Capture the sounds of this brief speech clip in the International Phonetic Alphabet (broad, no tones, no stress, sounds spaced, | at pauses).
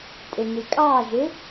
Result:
tʼ ɪ n i kʼ ɑ ʒ ɪ